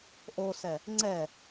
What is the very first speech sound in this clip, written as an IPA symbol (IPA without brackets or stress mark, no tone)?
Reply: ʔ